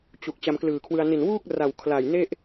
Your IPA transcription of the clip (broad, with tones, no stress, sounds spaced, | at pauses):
t͡ɕ u˨˩ k̚ t͡ɕ a˧ m k l ɯː˨˩ kʰ w ɯ˧ a̯ n i˨˩ n w uː˥˩ k̚ r a˨˩ w kʰ l a˨˩ j n e˥˩ ʔ